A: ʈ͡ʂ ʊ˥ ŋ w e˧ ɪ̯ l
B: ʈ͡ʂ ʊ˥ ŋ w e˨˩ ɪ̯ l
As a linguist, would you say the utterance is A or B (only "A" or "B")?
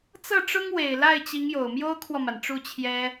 B